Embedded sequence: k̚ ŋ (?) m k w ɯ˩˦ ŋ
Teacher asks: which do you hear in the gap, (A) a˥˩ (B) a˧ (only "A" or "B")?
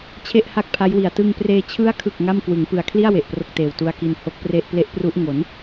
A